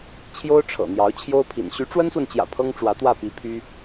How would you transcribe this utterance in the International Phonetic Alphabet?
t͡ɕʰ j o˥ ʊ̯ ʈ͡ʂʰ ɤ̰˨˩ n̪ j ɑ˧˥ ʊ̯ t͡ɕʰ j o˥ ʊ̯ pʰ ḭ˨˩ n ɕ y˧˥ ʈ͡ʂ w ə˥ n s w ə˨ n t͡ɕ j ä̰˨˩ pʰ ɤ˥ ŋ ʈ͡ʂ w ä˧˥ t̪ w ä˥˩ p i˧˥ pʰ y˥

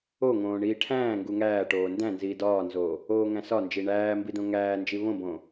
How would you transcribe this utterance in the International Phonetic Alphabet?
o ŋ õː ɳ iː ʈʰ æ̃ː ŋ ɡ u ŋ æː ʈ oː n d æ̃ n z iː d ɒː n z oː | oː ŋ æ̃ s ɒ n d͡ʒ i ɳ æː m b i d õ ŋ æː n d͡ʒ i β õ b õː

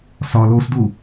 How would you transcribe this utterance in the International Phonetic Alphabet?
s ɒ l o s d u

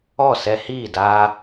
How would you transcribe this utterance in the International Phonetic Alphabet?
ɔ˦˨ s ɛ˧ h iː˦˨ d aː˧

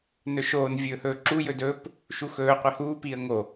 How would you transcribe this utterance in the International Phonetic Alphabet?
n ɵ ʃ oː n vʲ ɵː h ɵː ǁ u j ɵ d ɵː p | ʃ u x ɵː qʷ i h uː p iː ə̯ ŋ o

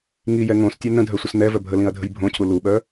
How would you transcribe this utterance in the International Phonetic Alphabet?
ŋ i j ɛ ŋ õ s tʲ ɛ n ə̃ dʱ œ sʷ ə s n̪ ɛ v œ bʱ ə l ĩ ɐ̯ dʱ ə̤ j bʱ õ cʰ u l u ɓ œ

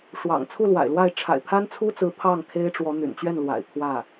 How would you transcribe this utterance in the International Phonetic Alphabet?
ʂ w ɑ̰˨˩ ŋ t͡sʰ u˥˩ l w a̰˨˩ ɪ̯ l w a˥˩ ɪ̯ ʈ͡ʂʰ a̰˨˩ ɪ̯ pʰ a˥ n t͡sʰ u˥ t͡s ɹ̩˧˥ pʰ ɑ˥˩ ŋ kʰ e˥ ɪ̯ ʈ͡ʂ w ɔ˧˥ n̪ y̰˨˩ n t͡ɕ ɥ ɛ˥˩ n l w a̰˨˩ ɪ̯ pʰ w ä˥˩

